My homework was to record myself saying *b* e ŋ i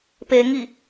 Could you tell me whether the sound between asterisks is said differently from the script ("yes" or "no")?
yes